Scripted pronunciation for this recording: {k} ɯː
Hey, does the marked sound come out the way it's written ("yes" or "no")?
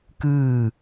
yes